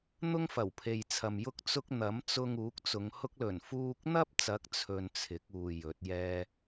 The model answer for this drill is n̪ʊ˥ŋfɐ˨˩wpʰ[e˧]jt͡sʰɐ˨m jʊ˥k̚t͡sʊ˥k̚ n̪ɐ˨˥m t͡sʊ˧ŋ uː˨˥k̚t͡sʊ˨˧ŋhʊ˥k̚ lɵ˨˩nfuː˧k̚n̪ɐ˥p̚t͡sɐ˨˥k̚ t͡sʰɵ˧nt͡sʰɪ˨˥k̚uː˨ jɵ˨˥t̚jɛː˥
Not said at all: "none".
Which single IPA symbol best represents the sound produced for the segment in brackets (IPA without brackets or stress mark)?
e˨